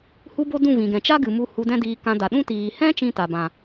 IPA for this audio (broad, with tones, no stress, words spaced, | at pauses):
hu˦bo˦ dũ˦˨vĩ˨ɡɛ̃˨ t͡ʃa˦ɡɨ˨ mu˧ hu˧dɛ̃˦diː˧ kã˧ da˨ɗũ˦ tiː˨hɛ̃˦ t͡ʃĩ˦ta˨bã˨